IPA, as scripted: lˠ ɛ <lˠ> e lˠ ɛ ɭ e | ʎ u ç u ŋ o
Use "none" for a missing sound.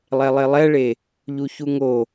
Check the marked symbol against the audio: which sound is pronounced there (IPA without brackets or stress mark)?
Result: lˠ